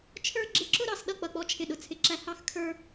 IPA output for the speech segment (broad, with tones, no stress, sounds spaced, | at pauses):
t͡ʃʰ ə˞˥ ɡ͡ǁ ɪ˥˧ ǁ ʊ˥ ɾ ɑ˥˧ s ɗ ʌ˥˧ k͡p ʌ˥˧ k͡p ɔ˥ t͡ʃʰ ɪ˥˧ ɗ ʊ˥˧ t͡sʰ ɪ˥˧ ǁ æ˥ h ɑ˥ x kʰ ə˞˥